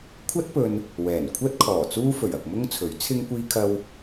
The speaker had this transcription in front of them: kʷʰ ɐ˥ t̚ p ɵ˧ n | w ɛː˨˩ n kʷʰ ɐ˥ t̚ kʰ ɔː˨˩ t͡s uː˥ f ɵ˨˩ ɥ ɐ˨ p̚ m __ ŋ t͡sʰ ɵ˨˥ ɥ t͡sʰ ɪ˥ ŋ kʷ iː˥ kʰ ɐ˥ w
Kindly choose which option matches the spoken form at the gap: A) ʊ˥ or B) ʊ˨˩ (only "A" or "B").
A